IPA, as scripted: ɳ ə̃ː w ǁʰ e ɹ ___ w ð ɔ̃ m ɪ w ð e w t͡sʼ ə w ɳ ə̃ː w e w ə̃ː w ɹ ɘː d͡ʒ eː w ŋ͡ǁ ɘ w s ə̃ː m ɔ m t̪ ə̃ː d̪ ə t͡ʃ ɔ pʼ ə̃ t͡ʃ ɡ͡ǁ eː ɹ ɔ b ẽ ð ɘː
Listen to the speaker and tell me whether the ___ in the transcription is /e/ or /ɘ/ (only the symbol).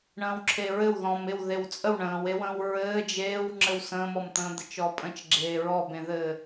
ɘ